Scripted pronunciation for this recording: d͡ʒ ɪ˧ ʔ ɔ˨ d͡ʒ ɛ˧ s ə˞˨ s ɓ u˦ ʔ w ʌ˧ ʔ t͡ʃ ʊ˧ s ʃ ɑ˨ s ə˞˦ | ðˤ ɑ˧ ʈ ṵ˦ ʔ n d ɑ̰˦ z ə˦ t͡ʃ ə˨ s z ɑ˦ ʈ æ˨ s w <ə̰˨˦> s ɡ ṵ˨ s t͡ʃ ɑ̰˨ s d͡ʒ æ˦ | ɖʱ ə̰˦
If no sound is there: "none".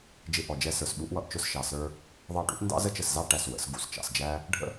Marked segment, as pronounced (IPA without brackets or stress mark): ə̰˨˦